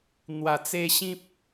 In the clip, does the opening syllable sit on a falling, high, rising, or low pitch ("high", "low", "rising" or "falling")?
low